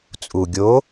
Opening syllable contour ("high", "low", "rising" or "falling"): low